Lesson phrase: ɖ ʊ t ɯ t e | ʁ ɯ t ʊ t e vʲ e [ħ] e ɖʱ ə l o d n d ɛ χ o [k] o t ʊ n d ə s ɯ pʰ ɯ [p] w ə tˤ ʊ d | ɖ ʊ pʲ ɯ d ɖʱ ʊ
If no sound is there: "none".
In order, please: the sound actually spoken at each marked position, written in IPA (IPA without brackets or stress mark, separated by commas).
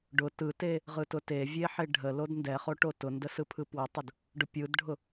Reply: ħ, ʈ, p